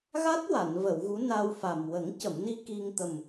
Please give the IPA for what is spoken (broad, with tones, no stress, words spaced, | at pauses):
ɣa˦˥t̚ wa˨˩˨nvə˨˩˨wɣu˧˥ na˧wfa˨˩m wə˨˩˦ŋcə˨˩˨mni˧ ki˧ŋt̪ə˨˩m